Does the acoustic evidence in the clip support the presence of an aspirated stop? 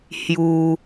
no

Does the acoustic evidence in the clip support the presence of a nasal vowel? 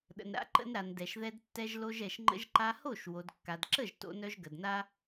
no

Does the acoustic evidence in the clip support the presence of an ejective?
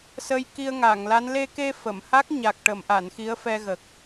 no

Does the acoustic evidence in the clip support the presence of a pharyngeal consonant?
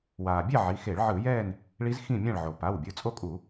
yes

